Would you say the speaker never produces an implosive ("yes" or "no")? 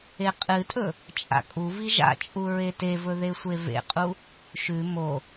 yes